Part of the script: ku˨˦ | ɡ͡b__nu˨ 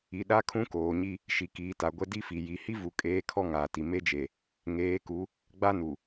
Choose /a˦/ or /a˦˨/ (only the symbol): a˦